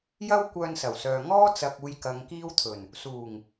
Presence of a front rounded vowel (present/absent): present